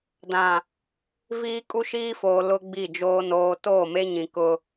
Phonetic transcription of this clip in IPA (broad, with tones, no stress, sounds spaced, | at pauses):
d ã˨ | v iː˦ kʼ u˦ ʃ iː˦ f oː˨ l ʊ˦ ɡ͡b i˦˨ d͡ʒ oː˦ n oː˦ t oː˦˨ m e˦ ɲ ĩ˨ k ʊ˦